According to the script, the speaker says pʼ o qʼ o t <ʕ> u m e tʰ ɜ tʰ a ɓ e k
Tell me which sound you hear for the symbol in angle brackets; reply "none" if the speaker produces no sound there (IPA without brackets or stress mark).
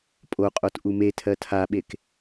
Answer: ʔ